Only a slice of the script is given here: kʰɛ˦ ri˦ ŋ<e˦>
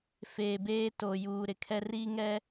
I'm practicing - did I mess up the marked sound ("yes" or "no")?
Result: yes